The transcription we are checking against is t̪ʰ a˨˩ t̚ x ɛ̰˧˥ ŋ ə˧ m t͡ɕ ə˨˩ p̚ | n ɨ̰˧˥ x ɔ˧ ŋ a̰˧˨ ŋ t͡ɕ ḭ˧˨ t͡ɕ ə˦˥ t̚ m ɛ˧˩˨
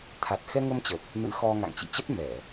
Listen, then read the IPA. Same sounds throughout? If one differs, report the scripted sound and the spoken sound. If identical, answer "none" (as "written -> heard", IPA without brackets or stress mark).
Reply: ɛ̰˧˥ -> ɛ˧